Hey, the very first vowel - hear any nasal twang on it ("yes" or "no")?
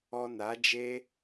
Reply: no